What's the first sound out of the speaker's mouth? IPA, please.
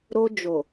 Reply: ɾ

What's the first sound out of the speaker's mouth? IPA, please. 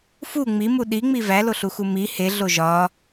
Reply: f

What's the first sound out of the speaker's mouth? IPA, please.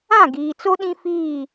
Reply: ã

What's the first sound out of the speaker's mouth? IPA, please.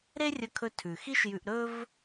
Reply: ɾ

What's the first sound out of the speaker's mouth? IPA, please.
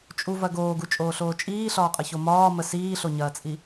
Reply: t͡ʃʼ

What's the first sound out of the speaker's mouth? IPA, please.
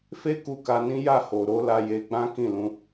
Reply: f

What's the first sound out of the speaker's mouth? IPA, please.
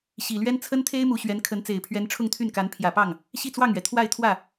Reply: ɕ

